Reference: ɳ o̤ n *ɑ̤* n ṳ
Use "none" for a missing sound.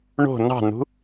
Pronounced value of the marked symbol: ɑ̤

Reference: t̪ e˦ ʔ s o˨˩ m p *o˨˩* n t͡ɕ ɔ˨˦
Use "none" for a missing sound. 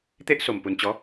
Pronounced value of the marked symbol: u˨˩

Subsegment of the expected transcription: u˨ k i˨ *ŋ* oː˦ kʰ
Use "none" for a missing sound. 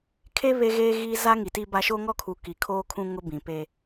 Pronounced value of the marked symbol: kʰ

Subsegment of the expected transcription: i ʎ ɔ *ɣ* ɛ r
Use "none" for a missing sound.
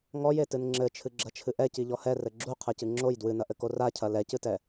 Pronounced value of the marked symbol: h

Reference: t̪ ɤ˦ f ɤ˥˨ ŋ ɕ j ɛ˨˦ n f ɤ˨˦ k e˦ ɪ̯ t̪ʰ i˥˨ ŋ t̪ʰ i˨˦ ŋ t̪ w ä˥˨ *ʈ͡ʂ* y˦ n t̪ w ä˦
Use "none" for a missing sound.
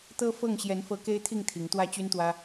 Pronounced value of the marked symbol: t͡ɕ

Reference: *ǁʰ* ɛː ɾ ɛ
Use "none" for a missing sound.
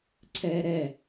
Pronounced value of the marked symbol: ǀʰ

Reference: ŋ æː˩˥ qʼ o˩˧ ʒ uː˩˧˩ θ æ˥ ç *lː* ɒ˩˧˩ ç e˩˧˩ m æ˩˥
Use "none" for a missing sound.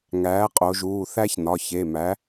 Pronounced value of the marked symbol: n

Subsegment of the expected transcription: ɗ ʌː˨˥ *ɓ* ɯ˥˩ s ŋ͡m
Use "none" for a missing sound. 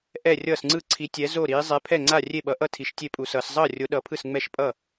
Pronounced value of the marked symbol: pʰ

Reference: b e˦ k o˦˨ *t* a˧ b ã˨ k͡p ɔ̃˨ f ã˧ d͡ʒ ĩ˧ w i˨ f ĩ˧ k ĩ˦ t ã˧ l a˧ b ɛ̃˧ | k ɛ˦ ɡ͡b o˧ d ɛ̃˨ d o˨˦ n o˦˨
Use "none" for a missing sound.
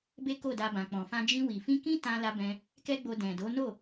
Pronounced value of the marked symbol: d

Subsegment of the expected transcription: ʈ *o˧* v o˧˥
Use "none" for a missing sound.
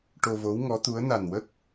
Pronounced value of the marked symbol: o˧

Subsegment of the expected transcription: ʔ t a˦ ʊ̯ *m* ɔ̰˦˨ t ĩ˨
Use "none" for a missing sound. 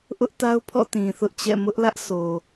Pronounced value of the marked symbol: pʰ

